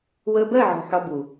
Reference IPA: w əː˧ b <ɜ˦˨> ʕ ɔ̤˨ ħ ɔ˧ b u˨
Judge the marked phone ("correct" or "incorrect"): correct